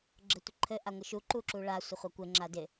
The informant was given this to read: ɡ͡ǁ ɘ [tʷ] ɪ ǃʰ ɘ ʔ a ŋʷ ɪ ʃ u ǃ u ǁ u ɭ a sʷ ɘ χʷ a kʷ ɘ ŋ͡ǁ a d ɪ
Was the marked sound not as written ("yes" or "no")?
no